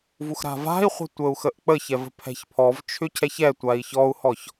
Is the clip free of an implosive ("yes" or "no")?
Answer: yes